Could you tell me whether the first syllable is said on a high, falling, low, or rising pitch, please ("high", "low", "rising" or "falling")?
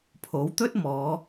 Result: rising